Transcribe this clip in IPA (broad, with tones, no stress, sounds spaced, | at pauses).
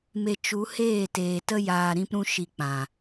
m e˧ t͡ʃ u˨˦ h eː˦˨ t eː˨ t ə˦ j aː˧ ɾ ĩ˦ p ɾ ũ˦ ʃ i˧ k͡p ã˨